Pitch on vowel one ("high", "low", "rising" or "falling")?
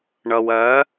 low